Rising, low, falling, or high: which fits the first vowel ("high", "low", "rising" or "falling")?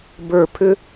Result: falling